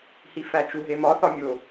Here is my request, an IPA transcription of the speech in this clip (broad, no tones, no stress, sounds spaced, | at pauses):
h i f æ t͡ʃ u ɦ e m ɒ θ ɒ mʲ o